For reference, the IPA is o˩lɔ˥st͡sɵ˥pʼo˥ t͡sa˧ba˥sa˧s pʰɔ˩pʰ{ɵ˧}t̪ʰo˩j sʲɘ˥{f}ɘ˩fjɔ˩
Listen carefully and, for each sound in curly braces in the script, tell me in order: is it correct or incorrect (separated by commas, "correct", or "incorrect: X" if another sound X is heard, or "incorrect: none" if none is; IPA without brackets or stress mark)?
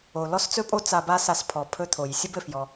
correct, incorrect: b